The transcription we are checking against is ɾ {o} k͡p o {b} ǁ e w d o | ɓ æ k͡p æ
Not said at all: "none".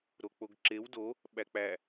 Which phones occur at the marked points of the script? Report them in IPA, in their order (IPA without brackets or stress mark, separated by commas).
o, ɡ